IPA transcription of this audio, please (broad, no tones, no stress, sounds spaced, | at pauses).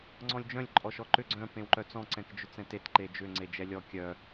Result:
ŋ͡ǀ ɔ̃ lʲ d͡ʒ œ̃ lʲ ǃʼ ɔ ʃ ɔ ǃ ʏ ɡ͡ǀ œ̃ p ẽ w ǃ œ t͡s ɔ̃ ǀ ɛ̃ k d͡ʒ ʏ t͡s ɛ̃ t e t ǃ e d͡ʒ ʏ ŋ͡ǀ e d͡ʒ ɛ lʲ ɔ kʲ œ